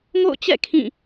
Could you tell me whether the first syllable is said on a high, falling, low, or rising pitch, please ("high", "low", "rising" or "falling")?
falling